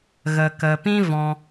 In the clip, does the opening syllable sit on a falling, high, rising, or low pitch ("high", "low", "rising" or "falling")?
low